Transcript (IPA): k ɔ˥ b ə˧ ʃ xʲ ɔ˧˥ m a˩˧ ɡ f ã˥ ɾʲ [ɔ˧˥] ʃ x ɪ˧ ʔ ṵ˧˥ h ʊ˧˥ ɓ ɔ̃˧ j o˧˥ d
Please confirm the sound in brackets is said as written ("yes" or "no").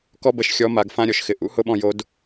no